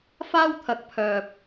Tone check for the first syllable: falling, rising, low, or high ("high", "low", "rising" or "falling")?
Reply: high